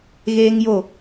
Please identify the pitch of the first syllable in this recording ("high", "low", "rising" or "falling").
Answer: high